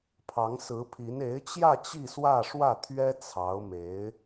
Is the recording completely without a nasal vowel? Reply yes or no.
yes